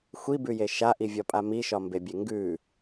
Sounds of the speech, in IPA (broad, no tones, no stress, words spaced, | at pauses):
xʷibʉje ʃaʔivʲɒpʼa miʃɒmbebʲe ŋɡʉ